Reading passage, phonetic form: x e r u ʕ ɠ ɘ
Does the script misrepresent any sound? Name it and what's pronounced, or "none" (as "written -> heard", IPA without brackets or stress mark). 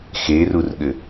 ʕ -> r